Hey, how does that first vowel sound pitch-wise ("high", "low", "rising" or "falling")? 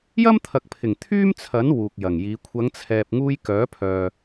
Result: high